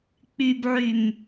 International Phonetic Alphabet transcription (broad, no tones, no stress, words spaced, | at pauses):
k͡pybʕym